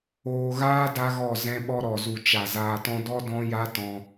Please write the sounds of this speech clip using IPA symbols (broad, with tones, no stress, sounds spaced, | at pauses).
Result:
oː˧ ɣ aː˦ d a˦ ɣ ɔ˦˨ z ɛ̃˧ ɓ ɔ˧ ɾ ɔ˨ z u˨ t͡ʃ a˨ z aː˧ t ɔ̃˦ d ɔ˦ d ɔ̃˦ j a˦ t ɔ̃˧